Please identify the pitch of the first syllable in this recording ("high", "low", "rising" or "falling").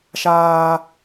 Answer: high